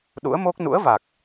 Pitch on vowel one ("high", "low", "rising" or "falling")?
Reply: rising